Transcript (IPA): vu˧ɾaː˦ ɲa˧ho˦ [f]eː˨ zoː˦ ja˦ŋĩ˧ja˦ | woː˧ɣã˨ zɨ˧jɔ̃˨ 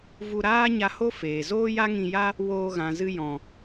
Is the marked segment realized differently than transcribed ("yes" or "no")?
no